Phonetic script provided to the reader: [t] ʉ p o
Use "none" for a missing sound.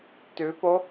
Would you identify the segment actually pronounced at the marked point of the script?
t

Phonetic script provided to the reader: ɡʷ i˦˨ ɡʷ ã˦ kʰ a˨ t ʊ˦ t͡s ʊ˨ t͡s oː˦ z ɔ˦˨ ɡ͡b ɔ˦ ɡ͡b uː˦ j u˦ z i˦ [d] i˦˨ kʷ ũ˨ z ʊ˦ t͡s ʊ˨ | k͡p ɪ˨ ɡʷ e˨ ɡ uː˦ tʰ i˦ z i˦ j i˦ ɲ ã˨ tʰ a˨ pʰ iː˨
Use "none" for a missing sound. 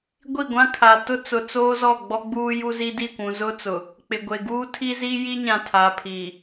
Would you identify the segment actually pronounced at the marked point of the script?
d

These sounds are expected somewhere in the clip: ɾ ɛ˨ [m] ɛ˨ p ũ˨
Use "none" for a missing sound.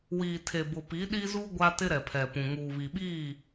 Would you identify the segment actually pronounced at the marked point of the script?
pʰ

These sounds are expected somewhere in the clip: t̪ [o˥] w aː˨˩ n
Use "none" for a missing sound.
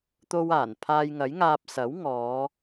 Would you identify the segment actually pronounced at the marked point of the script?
o˧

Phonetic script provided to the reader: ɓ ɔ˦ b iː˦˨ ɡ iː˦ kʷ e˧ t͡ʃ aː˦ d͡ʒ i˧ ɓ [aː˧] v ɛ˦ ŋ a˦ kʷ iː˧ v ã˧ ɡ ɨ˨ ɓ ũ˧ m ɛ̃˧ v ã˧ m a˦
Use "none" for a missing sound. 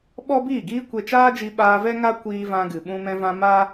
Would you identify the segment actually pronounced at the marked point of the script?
aː˧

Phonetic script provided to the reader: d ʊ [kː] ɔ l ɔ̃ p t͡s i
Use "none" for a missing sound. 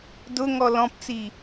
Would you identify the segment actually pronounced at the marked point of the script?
ŋ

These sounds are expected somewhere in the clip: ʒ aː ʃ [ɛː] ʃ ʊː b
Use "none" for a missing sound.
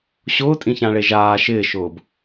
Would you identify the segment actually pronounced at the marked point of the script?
ɪː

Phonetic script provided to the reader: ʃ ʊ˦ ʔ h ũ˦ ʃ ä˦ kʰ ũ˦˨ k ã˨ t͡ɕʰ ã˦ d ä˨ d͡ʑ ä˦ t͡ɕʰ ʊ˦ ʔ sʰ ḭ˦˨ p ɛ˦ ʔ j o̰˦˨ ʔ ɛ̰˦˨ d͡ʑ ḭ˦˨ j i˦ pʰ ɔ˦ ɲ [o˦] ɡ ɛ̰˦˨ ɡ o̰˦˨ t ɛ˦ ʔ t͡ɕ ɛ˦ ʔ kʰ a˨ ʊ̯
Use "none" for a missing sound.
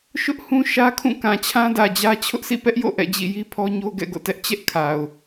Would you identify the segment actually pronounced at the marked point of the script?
o˦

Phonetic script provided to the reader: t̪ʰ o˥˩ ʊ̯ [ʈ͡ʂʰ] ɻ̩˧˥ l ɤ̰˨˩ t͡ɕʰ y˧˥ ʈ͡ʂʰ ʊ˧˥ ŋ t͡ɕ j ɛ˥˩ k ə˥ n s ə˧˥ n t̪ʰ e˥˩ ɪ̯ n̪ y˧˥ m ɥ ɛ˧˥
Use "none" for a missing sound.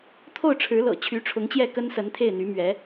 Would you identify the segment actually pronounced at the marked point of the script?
ʈ͡ʂʰ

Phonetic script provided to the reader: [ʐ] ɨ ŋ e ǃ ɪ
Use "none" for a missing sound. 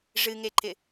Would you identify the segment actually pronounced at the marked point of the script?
ʐ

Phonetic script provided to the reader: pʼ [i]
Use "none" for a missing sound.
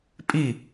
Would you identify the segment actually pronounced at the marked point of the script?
i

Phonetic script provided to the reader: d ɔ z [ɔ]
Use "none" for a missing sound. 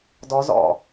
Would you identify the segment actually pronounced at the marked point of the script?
ɔ̰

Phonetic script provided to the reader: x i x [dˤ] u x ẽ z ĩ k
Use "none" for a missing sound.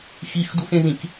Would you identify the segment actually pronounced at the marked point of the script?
d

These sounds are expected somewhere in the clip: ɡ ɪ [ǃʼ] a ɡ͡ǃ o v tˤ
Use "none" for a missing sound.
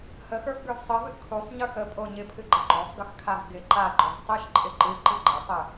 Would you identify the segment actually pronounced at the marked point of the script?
ǃ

